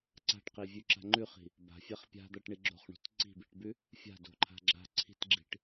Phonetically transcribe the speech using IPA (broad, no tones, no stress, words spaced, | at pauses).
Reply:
ǀa̤ʈqivʲʉǁa̤ ŋ͡ǃʉχi̤ | ba̤fʲaχ pʲa̤d̪aʈɳi ɡ͡ǁo̤χɳo̤t ǀi̤biʈbʉ | fʲa̤do̤ǃʰa̤ ɡ͡ǁa̤ ǀʰi̤tɡ͡ǁi̤ʈ